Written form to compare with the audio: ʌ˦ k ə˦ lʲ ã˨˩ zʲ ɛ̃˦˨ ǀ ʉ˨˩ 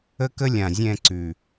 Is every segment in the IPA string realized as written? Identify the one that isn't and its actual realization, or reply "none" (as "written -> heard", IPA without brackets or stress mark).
ʌ˦ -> ə˦